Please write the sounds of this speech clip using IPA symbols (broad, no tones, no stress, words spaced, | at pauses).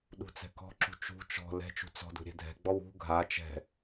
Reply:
ɗṳt͡sɛ̤kɔ̤ǁṳ t͡ʃṳ t͡ʃɔ̤ lɛ̤t͡ʃṳ t͡sɔ̤d ṳɾʲɛ̤dʱɛ̤ɡ͡bɔw ṳ ɡʱa t͡ʃɛ̤